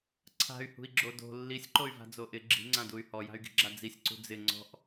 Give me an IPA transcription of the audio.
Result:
ǀʰ a̤ y̯ h ṳ i̯ ɡ͡ǁ o d o̤ lː i sʲ ǃ o y̯ v a̤ d͡z o ʔ ɪ ɡ͡ǁ i̤ ŋ͡ǀ ã d u y̯ h ɔ j a̤ y̯ ɡ i̤ ɡ͡ǁ a d͡z i sʲ ǀ ṳ d͡z ɪ ŋ͡ǀ ɔ̤ ʔ

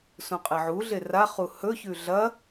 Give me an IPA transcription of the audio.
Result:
s ũ qʼ e ʕ u ɮ e r a χ u h ɵ ç ʉ ɮ ɐ

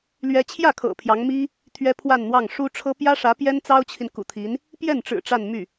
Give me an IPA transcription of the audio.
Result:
l ɥ ɛ˥ t͡ɕʰ j ä˥˩ kʰ ɤ̰˨˩ pʰ j ɑ˧˥ ŋ m i˥ | t̪ʰ ɥ ɛ˥ pʰ w a˥˧ n n̪ w ɑ˥˩ ŋ ʂ u˥ ʈ͡ʂʰ ɤ˥ p j ä˥ ʂ ä˧˥ p j ɛ˥ n t͡s ɑ˥ ʊ̯ t͡ɕʰ i˨ n k ṵ˨˩ t̪ʰ i˧˥ n | p j ɛ˥˩ n ʈ͡ʂ ɻ̩˨˩ ʈ͡ʂ a˥˧ n m y˥˩

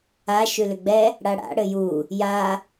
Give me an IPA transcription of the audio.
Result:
a ʃ ʉ l ʏ ɡ͡b ɛ | ɽ a ɽ a̰ ɽ ɘ j u | j a

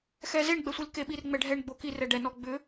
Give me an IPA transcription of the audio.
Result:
x ɛ z e ɳ ɡ͡b ɛ sʷ i l k e ɓ i r ŋ͡m ɛ ɖʱ ɛ ɳ ɡ͡b o k i r ɛ ɖ ɛ n ɔ ɡ͡b ʏ

